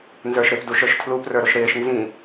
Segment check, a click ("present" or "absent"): absent